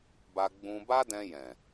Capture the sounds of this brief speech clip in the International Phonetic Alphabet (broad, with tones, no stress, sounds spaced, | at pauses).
b a˧ ɡ͡b ũ˧ b a˦ d ɛ̃˧ j ɛ̃˨